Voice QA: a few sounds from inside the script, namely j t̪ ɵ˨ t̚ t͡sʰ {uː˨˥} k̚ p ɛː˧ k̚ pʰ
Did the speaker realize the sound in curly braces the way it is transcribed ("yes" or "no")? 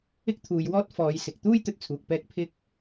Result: no